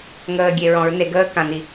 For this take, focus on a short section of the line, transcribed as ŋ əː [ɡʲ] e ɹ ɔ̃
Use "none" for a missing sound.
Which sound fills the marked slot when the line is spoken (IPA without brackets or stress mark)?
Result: ɡʲ